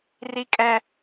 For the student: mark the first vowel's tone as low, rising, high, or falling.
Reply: high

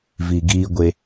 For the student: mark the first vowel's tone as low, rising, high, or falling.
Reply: low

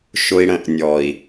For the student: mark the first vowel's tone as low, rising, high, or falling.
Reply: high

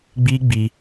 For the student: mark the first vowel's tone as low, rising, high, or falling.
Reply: high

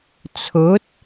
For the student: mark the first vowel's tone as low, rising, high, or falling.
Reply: rising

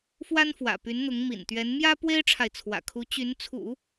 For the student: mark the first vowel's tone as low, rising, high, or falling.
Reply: high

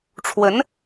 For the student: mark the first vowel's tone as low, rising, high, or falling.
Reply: rising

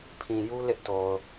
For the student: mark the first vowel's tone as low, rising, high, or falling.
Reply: low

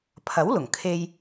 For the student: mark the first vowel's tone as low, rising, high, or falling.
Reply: rising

